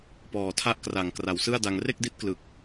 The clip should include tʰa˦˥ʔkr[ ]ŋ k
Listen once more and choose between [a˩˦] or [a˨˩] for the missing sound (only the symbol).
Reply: a˨˩